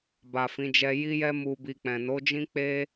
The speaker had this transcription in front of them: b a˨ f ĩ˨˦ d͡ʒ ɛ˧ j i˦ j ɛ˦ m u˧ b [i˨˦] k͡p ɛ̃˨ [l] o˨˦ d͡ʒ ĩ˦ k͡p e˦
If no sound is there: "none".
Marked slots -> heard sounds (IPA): i˧, n

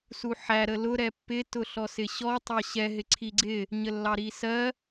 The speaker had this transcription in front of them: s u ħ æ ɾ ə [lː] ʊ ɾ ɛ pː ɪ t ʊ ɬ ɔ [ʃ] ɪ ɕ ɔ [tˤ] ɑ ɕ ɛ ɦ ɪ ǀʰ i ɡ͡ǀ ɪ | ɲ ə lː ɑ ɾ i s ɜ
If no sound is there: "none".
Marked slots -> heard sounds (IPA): l, s, tˤ

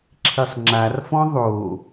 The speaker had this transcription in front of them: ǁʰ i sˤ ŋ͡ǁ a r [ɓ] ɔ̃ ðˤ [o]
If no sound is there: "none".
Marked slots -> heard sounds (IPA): f, o

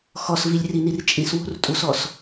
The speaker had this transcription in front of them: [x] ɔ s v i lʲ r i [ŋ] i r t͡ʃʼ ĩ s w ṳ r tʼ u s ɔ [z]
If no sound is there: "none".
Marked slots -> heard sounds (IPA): x, n, s

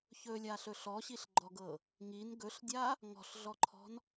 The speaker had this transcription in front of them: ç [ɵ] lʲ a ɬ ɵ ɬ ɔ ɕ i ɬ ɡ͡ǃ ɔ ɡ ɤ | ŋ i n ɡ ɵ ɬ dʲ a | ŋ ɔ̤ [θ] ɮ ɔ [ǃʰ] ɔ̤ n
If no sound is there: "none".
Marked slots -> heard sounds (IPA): ɵ, ɬ, ǃʰ

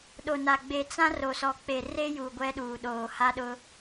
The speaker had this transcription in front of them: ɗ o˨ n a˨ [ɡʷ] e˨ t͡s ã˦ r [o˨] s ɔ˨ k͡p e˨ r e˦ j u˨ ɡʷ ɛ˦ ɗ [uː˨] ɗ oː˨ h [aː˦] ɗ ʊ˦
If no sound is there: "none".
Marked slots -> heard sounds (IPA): ɡ͡b, o˨, uː˨, a˦

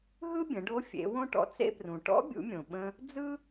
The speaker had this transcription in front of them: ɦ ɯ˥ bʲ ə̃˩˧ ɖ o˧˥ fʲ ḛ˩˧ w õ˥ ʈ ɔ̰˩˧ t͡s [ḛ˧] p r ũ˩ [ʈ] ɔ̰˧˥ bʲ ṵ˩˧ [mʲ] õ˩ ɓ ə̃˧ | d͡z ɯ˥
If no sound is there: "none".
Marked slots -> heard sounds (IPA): ḛ˧, ʈ, mʲ

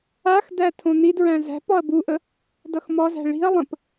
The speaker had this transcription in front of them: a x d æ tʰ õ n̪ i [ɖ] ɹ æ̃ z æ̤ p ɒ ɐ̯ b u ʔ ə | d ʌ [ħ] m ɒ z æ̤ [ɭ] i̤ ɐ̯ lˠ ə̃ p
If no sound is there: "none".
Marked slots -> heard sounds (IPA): d, x, ɭ

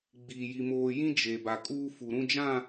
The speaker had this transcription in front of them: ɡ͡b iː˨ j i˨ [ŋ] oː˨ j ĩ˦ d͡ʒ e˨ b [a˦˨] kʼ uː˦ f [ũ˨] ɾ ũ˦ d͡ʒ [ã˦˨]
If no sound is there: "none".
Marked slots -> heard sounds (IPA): m, a˨, u˨, ã˦˨

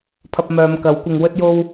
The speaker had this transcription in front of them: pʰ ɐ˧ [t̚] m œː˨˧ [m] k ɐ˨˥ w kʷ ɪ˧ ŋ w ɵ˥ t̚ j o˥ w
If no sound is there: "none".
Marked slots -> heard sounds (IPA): p̚, m

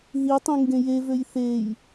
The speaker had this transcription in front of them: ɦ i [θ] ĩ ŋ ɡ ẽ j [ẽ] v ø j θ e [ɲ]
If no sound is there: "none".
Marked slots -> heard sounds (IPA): tˤ, e, j

